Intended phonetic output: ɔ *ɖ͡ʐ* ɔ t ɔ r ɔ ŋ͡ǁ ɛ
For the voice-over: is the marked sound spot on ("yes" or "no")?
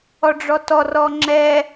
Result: yes